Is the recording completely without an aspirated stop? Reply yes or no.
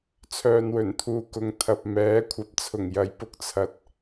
no